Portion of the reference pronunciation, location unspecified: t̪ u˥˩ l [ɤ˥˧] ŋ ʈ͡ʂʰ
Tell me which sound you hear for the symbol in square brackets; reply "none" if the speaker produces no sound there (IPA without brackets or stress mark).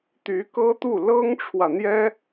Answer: ɤ˥